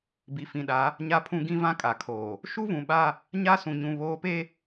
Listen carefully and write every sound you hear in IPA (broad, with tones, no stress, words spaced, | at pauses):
bi˨fĩ˨ɗa˨˦ | ɲa˦pʰũ˦ɡĩ˦vã˦ kʼa˨kʰoː˨ | ʃu˦vũ˨ɓa˦ | ɲa˦sũ˨ɲũ˨ βoː˦pe˦